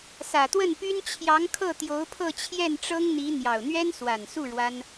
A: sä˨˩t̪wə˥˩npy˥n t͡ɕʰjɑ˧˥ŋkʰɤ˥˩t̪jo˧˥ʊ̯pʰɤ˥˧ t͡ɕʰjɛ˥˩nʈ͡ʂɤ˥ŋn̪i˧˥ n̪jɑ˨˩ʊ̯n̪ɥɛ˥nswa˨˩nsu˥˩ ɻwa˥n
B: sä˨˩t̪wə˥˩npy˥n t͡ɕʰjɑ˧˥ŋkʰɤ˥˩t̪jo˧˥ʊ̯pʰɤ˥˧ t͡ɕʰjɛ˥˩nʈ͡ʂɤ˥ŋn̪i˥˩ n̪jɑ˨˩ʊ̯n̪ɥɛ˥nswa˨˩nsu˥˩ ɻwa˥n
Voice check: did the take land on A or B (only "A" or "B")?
A